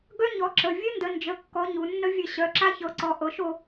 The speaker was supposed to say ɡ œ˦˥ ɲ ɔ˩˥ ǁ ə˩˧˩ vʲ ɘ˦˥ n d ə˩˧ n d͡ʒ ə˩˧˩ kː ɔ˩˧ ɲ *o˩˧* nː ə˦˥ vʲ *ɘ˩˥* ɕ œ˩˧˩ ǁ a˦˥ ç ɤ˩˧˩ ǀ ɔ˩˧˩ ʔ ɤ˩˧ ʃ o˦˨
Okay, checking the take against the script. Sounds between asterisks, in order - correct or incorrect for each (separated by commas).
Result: incorrect, incorrect